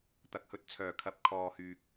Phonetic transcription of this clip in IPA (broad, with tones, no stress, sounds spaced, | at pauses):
t̪ ɐ˨˥ k̚ h ɵ˨ t̚ t͡sʰ œː˨˩ kʰ ɐ˨ p̚ kʰ ɔː˨ h yː˨ k̚